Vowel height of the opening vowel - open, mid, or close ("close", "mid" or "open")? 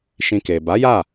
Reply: close